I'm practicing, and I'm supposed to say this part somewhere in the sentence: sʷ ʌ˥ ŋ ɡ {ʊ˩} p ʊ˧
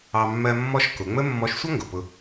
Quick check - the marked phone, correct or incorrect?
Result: correct